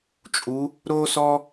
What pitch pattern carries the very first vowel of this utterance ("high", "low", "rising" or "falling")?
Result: rising